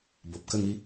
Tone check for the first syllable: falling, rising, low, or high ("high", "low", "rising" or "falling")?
low